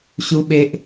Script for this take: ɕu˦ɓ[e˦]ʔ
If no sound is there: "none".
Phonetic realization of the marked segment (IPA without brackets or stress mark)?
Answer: e˦